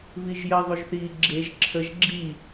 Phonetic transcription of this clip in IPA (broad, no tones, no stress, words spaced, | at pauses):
βiʒjə ðˤuʒθiːɡ͡ǁeʒ ǁʰəʒ ɡ͡ǁi